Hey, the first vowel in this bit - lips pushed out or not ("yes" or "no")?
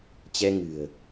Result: no